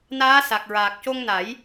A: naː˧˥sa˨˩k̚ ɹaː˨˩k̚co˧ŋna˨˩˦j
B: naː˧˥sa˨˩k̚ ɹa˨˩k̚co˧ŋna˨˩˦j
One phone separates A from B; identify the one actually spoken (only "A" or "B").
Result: A